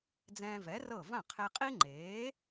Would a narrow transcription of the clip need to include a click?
yes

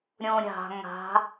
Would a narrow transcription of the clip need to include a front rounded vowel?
no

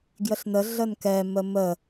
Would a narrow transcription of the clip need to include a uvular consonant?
no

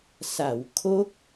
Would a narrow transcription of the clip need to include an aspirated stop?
yes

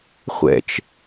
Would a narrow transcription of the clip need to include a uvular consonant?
yes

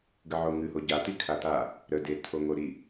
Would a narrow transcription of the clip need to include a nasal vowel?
no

